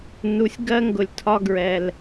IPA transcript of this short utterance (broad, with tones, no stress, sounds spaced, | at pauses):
n u˨ sʲ ɡ ɜ˥ ŋ ɡ ʊ˨ lʲ tʰ ɒ˦ ɡ ɹ ɛ˨ l